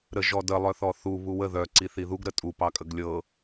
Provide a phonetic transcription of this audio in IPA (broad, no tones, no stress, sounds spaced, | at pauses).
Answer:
ɾ ə ʒ ɔ d ə lˠ œ θ ɔ θ u β u w ə ð œ ǀ i θ i ð u ɡ ɾ ə tʼ u p ɑ kʼ ə ɡ lʲ ɤ